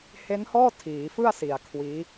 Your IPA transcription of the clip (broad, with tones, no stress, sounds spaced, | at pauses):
h e˦˥ n h ɔː˥˩ tʰ iː˩˦ f ɯ˥˩ a̯ s i˨˩ a̯ kʰ w iː˦˥